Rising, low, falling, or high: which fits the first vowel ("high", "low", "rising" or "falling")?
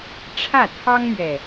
falling